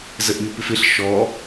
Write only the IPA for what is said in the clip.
zəʔɲupɪfɪɬ ʃɔ

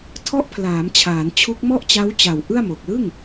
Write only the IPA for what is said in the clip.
tʰɔ˦˥ʔpʰlaː˩˦m t͡ɕʰaː˩˦nt͡ɕʰu˦˥k̚ mɔ˥˩ʔt͡ɕa˦˥wt͡ɕa˨˩w ʔɯ˥˩a̯mo˨˩k̚ lɯ˥˩ŋ

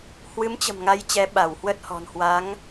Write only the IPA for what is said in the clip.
hwɨ˨˦mt͡ɕə̤˨˩mŋa˨˦j t͡ɕɛ˨˦ɓa˧˩whwə˦˥t̚hɔ̤˨˩n hwa˨˦ŋ

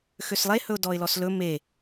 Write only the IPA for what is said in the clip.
xøslˠe hɵʊ̯dɔɪ̯lɔslɵ me

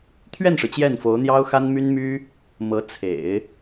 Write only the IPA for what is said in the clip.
t̪ʰɥɛ˥˩nʂɻ̩˩ t͡ɕjɛ˥˩nfo˧˥ʊ̯ n̪jɑ˥ʊ̯xa˥n my˥nmy˥ | mɤ˧˥t͡sʰḛ˨˩˦ɪ̯

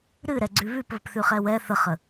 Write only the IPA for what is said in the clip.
ɾɨɾɛɡ͡ǀʉ βʉp βəpθʉχɛwɛ θəχə

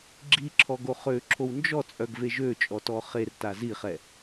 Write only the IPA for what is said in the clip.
ɡ͡ǁiǁʰɔ ɡoχøǁʰow nd͡ʒɔt͡sʼœɡ veʒøt͡ʃʼɔ tɔχerta ziχɛ

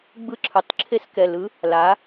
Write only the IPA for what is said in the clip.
ɡ͡bɯ˧˥ǁʰɯ˩˧˩tˤǁʰe˧˥s kɛ˩˧˩lɯ˧˥ | la˧˥

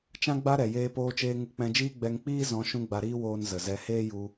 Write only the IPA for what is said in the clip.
t͡ʃã˦ɡ͡ba˦ɾɛ˨ jeː˧poː˧t͡ʃeː˧ ŋu˧ k͡pɛ̃˧d͡ʒiː˦ ɡ͡bɛ˧ŋk͡piː˦ zɔ̃˨˦ ʃũ˦ɡ͡ba˧ɾiː˦woː˧n zə˨zɛ˧ heː˦ju˧

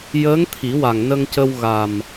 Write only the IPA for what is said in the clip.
jəː˧˥ŋ t̪ʰi˨˩˦wa˨˩ŋnə˧ŋcə˧w ɣa˨˩m

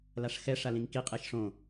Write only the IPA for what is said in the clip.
laʂxɛ ʂalĩŋki qʼeʃʂõ

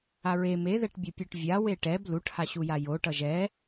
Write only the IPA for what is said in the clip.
aɹe meðɛʈbʲo pʲoʈvʲa weʈɛb luʈhaɕuja jo ʈʌʒɛ

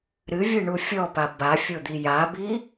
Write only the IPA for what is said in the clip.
ɾɨvʲɨɳu fʲɔpa bafʲod̪i jabi

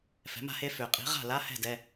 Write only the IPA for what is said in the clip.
fɛ̤˩˥ma̤˥˩he˥˧fø˨˩˦ qʼi̤˩˥ʁa̤˥˩la˧˥˧hɛ̤˥˩ dɛ˧˥˧

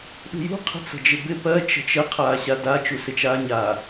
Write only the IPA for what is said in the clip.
ɗṳjṳ qʰə̤t͡sə̤d͡ʒɪbɪ pɜ t͡ʃə̤t͡ʃə qʰaːɕada t͡ʃusɪt͡ʃaːɲa

